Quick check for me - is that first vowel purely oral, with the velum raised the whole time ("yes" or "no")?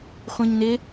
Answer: no